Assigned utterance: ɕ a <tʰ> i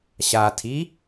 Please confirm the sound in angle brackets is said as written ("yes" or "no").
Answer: yes